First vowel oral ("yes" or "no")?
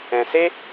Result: no